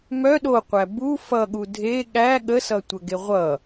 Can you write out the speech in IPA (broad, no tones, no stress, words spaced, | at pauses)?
mœ ɗoqʷæ bu fʌɠu dʱe ɠæ ɠəsʌtʷəɡe ʁʷʌ